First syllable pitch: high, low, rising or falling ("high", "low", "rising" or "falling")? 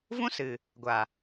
high